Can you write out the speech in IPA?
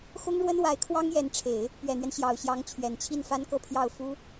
x ʊ˥ ŋ ɻ w ə˥ n w a˧˥ ɪ̯ kʰ w ɑ˥ ŋ j ɛ˧˥ n ʈ͡ʂʰ e˨˩˦ ɪ̯ | p ɥ ɛ˨˩ n̪ ɥ ɛ˦ n ɕ j ɑ˨˩ ʊ̯ ɕ j ɑ˧˥ ŋ t͡ɕʰ ɥ ɛ˨˩ n t͡ɕʰ i˥˩ n f a˥ n k ɤ˥˧ pʰ j ɑ˥˩ ʊ̯ f u˥

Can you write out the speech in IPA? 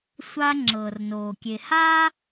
sʷ a˧ ŋ͡ǁ ɤː˩ r n oː˩ kʲ e˩ h aː˥

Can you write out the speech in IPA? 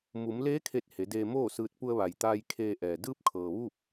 m u˩˧ m l eː˧˥ kʰ e˧˩ t̚ h e˩˧ d eː˧ m oː˥˨ s ɯː˧ t̚ p u˧ ə̯ ʋ a˩ j t̪ aː˧ j kʰ eː˧ ʔ ɛː˩ d ɯː˧˥ p̚ kʰ ɤː˩ ʋ u˥˨ p̚

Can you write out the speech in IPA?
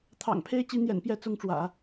t̪ʰ ɑ̰˨˩ ŋ pʰ e˥ ɪ̯ t͡ɕ i˧˥ n̪ j ɛ̰˨˩ n p j ɛ˥˩ t͡s ʊ˥ ŋ ʈ͡ʂ w ä̰˨˩˦

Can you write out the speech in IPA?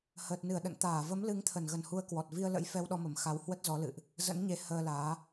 h əː˨˩ t̚ n ɨ˧˩ ə̯ ɗ ə̰˧˨ n t̪ aː˧˩ v ə˨˦ m l ɨ˨˦ ŋ t̪ʰ ə˧˩ n ɣ ə˧˩ n h u˨˦ ə̯ k w ɔ˨˩ t̚ v i˧ ə̯ l ə̰˧˥ j f ɛ˧ w ɗ ɔ˧ m ə˧˩ m x a˨˦ w h w ə˦˥ t̚ z ɔ˨˦ l ɨ̰˧˨ ʔ | z ə̰˧˥ n ɲ e˨˦ h əː˧ l aː˨˦

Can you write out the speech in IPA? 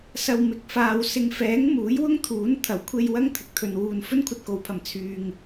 s ɐ˨ w m ɪ˨˥ k̚ f aː˨ w s ɪ˨˧ ŋ f ɛː˨˥ ŋ m uː˨˥ j w ʊ˥ ŋ t̪ʰ uː˨˥ n t̪ʰ ɐ˨˩ w kʷʰ e˧ j w ɐ˥ ŋ t̪ʰ ɪ˨ k̚ t̪ʰ ɵ˨ n w uː˨ n f ɵ˥ n kʷʰ ɐ˧ t̚ k o˨˥ w pʰ ɐ˨˩ m t͡sʰ yː˧ ŋ

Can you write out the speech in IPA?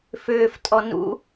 f ʏː f tʼ ɔ n ṵ

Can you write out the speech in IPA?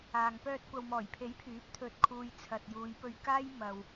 aː˨ ŋ p œː˧ t̚ kʷ ɐ˨ w m ɔː˨˩ j pʰ e˨˥ j pʰ yː˨˥ p̚ t̪ʰ ɵ˨ t̚ kʰ uː˨ j t͡sʰ ɐ˨ t̚ j uː˨˧ j p ɵ˧ ɥ k aː˥ j m ɐ˨ w

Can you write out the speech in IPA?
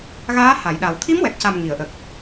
ɣ aː˧˥ h a˨˩˨ j ɗ a˨˩ w t̪ʰ i˧˥ m w ɛ˨˩ k̚ c a˨˩ m ŋ i˨˩˨ ə̯ ʔ ə˨˩ k̚

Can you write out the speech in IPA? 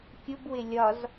kʲ ʊ b w ɪ lʲ ɒ z

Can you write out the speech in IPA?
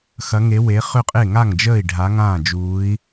x ɐ˧˥ ŋ e˧˥ w e˧˥ χ ʏ˥˨ qʼ e˥˨ ŋ a˥˨ ŋ d͡ʒ əː˥˨ i̯ ɖʱ a˧˥ ŋ ãː˥˨ d͡ʒ uː˧˥ i̯

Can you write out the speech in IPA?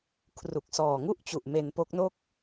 kʰ r u˨˩ k̚ s ɔː˨˩ ŋ u˥˩ ʔ t͡ɕ u˨˩ ʔ m e˧ n p o˦˥ k̚ n o˥˩ k̚

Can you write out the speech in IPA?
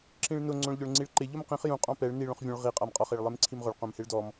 ǁ ĩ ɭ n ʊ ŋ͡ǀ õ ɭ ʎ ʊ ɭ ŋ͡ǀ i ɭ ǃ ɪ ʎ o m q ĩ χ j ũ qʼ ɔ̃ p ɛ ɭ n i ɭ õ χ vʲ ũ ɭ ʁ i qʼ a m qʼ ɔ χ e ɭ lˠ e m ǀʰ i m ʁ ʊ ɭ q õ m h e ɭ d ɔ m

